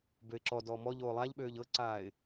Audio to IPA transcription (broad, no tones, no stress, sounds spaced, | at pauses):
b ø ɪ̯ ǁ ɔ d ɔː m ɔ ʎ oː lˠ a ʎ ɓ øː ʎ ɤ ǀ aː ɪ̯